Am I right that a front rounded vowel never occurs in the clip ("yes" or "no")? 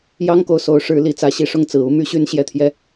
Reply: no